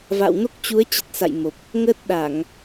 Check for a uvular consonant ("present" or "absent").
absent